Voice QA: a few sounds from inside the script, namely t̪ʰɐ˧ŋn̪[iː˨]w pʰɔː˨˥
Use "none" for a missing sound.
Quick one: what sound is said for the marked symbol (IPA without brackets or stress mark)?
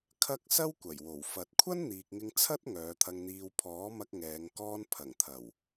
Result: iː˧